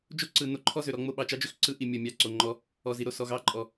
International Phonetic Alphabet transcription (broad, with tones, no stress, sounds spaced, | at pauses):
d͡ʒ o˦ ǀ ɯ˨ n o˦ ǃʰ ɔ˦ z ø˨ ɾ ɔ˦ ŋ͡m o˦˨ ɓ ɑ˨ t͡ʃ ɑ˦ d͡ʒ ø˦ x ǀ ɯ˦ ʔ i˨ mʲ ʌ˨ mʲ ɑ˦˨ ǀ o˨ ŋ͡ǃ ɔ˦ | ɔ˨ z i˨ ɾ o˨ s ɔ˨ ɣ ɑ˦ ǃʼ ɔ˨